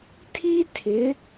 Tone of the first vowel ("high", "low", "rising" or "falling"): high